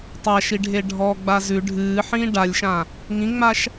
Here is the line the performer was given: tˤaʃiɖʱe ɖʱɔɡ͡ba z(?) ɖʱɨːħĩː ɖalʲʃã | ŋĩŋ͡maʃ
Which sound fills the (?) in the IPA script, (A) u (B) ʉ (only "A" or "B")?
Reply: B